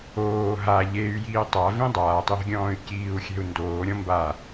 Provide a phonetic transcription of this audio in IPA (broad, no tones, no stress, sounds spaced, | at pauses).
oː ɦ a ʎ e y̯ j iː tˤ a v ĩ dˤ aː tˤ j ɛ̤ ɡʲ ɔ̃ː y̯ c iː u̯ xʲ ɛ̤ u̯ n d oː ɾʲ ɔ̃ m b a